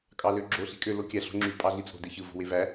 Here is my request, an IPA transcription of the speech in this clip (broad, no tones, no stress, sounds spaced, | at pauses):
kʼ ɑ l ø ɡ͡ǁ o ɬ i̤ kʼ ø l o kʲ æ ɬ o̤ ŋ͡ǁ y pʼ ɑ ɮ i t͡sʼ o̤ d e ç ɯ v o̤ w e v æ